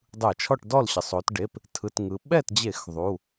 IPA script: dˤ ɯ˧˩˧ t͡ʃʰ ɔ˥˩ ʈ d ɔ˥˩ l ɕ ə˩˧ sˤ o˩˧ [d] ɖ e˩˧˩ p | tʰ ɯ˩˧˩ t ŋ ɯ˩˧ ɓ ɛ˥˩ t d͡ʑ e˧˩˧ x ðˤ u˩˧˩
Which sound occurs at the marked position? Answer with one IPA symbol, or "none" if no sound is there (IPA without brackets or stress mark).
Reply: t